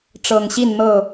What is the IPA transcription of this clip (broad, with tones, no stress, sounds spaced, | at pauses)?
ʈ͡ʂ ɤ˨˩ ŋ ɕ i˥˨ n n̪ ɤ˥˨